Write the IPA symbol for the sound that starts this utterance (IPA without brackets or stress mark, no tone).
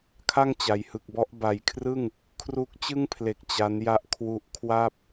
kʰ